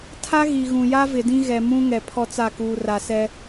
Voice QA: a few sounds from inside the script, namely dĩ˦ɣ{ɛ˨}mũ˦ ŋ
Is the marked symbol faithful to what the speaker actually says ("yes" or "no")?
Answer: yes